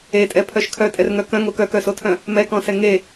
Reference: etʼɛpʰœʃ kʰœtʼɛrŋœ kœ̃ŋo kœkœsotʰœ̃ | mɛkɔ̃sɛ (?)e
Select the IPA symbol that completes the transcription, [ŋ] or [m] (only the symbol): ŋ